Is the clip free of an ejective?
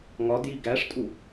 no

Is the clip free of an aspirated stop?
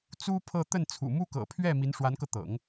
no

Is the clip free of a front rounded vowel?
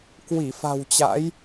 yes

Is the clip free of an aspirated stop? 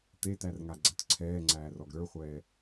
no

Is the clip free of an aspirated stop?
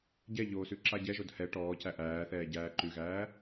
yes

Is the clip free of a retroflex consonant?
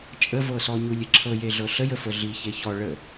no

